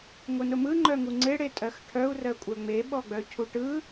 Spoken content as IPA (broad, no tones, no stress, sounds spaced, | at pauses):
ŋʷ ɯ n ʊ m ɯ ŋ͡ǃ œ ŋ u ŋ͡ǀ e ɽ e tʼ ɜ x ʈʰ œ u̯ r ɜ kʷʼ ɜ ŋ͡m e ɓ ɔ ɡ͡b œ cʰ u ʈ ɯ